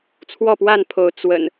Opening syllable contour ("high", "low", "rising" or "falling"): falling